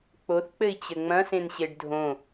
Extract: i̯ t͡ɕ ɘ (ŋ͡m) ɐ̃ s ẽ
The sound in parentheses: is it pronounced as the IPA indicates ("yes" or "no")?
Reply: yes